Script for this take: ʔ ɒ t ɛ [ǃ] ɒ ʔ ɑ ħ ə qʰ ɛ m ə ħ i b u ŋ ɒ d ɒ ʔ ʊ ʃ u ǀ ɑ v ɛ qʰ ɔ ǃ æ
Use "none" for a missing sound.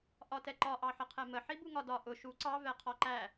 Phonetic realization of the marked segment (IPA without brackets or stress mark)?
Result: ǃ